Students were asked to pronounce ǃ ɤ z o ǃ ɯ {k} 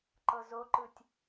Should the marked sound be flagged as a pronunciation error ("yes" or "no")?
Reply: yes